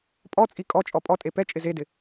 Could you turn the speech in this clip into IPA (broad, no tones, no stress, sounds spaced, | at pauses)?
pʼ ɔ t͡sʼ i kʼ ɔ t͡ʃʼ ɔ pʼ ɔ tʼ e p ɛ t͡ʃʼ ɪ z e d ɪ